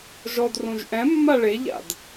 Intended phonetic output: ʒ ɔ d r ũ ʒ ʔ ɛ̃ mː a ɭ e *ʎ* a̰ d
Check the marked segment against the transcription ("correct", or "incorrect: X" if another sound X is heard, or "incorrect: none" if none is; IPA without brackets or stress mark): correct